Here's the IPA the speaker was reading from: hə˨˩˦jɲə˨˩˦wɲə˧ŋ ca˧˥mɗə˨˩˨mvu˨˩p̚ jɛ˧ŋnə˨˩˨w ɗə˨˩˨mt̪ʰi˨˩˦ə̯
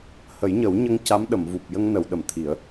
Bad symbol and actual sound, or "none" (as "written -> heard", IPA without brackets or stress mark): ɛ˧ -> ə˧